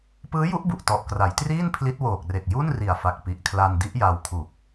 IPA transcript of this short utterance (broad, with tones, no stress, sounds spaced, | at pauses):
p ɯː˦˥ j u˦˥ ʔ b u˨˩ ʔ t ɔ˨˩ ʔ k r a˩˦ j t r iː˥˩ n pʰ l i˦˥ t̚ w oː˨˩ k̚ r e˨˩ k̚ j u˥˩ n r i˨˩ a̯ f a˨˩ k̚ p i˨˩ ʔ kʰ l a˧ n d i˦˥ ʔ j a˧ w kʰ u˨˩ k̚